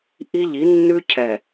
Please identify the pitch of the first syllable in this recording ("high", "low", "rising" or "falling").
high